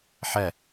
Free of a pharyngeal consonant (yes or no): no